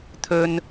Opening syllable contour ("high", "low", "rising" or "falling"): high